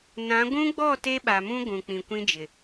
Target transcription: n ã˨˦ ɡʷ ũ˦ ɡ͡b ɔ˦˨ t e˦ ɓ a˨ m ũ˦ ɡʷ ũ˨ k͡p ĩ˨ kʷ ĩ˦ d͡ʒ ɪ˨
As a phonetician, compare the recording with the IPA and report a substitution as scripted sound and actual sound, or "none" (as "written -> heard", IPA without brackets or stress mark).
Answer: none